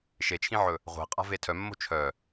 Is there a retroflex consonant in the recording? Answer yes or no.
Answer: no